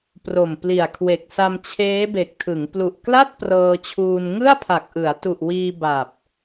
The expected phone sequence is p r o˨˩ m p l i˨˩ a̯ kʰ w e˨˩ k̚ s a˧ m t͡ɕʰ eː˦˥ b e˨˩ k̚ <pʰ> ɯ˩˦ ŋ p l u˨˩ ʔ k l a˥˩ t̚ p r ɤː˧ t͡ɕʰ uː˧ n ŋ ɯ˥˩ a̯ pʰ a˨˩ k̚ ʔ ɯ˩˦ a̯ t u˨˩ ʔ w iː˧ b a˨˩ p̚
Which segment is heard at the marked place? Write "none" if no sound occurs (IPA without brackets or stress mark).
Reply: tʰ